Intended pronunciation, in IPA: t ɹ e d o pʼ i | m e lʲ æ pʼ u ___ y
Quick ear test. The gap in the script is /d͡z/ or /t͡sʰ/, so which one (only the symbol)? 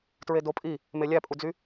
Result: d͡z